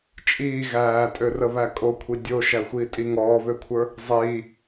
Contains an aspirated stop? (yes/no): yes